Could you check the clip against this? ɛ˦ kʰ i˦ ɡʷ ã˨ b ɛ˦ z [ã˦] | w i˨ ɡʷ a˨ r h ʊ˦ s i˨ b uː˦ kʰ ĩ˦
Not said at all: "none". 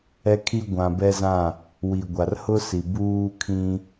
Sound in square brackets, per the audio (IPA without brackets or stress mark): ã˦˨